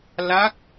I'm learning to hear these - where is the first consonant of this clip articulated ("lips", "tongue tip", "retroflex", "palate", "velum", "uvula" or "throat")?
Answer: tongue tip